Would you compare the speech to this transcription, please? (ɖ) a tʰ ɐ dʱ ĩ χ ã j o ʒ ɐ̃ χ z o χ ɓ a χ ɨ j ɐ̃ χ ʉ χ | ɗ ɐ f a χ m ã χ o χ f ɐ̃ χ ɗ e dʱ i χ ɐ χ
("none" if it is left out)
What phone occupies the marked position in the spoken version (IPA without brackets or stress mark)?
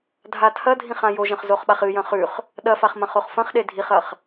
dʱ